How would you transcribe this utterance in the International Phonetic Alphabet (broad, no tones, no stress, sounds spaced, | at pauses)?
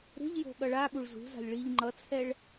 ɾ e̤ ʎ j o̤ ɠ ʌ ɭ a ɠ u ɭ z ṳ z a̤ lʲ ɭ i ʎ ŋ͡ǃ ʌ t͡sʰ ɛ ɭ